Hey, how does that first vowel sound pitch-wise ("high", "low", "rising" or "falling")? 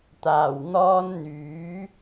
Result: low